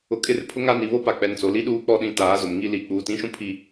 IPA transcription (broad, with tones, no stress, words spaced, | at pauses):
ʊ˨kʼɪ˦˨rpʰʊ˦ ŋa˦ni˨ βo˦pa˨ k͡pɛ˨nt͡so˨li˦ ɗuː˦k͡pɔ˦ɗĩ˦˨ taː˨˦zʊ˨mŋi˦ li˨˦ k͡puː˨tĩ˦ʃũ˦ pʰi˦